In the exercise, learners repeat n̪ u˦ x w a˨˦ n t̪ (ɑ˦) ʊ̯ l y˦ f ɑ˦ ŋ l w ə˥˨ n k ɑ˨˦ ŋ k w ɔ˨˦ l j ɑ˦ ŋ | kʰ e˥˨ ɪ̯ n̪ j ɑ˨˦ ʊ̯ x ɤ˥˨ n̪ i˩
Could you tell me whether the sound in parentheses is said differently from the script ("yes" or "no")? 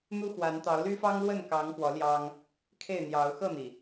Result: yes